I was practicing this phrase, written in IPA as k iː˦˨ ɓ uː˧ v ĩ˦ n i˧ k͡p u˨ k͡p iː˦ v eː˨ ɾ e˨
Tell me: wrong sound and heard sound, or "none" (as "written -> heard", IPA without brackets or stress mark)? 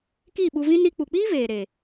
uː˧ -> u˧